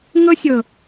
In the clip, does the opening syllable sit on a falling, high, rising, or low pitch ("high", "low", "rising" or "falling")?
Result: high